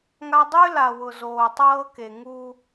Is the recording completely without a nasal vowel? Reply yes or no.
yes